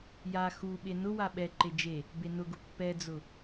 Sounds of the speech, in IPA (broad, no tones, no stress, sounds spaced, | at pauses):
j a x u ɓ e n ʊ w a ɓ ɛ ǃ e d͡ʒ e | b e n ʊ ɡ ʊ pː ɛ d͡z ʊ